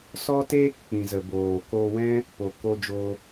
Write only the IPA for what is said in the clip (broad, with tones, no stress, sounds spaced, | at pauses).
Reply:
s ɔ˦ t eː˦ k k͡p ĩ˨ z ə˨ b oː˨ k o˧ w ɛ̃˦ | p o˨ k o˧ d͡ʒ oː˧